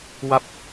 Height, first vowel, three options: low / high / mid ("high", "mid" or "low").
low